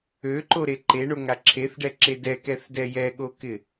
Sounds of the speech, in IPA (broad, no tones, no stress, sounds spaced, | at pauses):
ø ǃ o ɾ e ǃ e ɳ o ŋ a ǁʰ e θ ɖ ɛ ǁ e d ɛ k ɛ θ d ɛ j ɛ ɠ o k ɪ